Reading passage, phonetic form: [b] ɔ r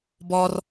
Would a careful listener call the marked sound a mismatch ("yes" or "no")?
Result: no